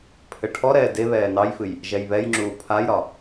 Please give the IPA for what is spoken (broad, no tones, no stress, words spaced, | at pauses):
pʰɘʈʰɔɾɛː deβɛː nɑjfɨj | ʒɛjβɛjŋ͡ǁuː pʰajɾɒ